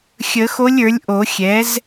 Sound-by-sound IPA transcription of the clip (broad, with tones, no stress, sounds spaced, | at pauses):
xʲ ə˨˩˦ x o˧˥ lʲ ə˞˩˥ lʲ ʔ o˨˩˦ xʲ ɛ˩˥ z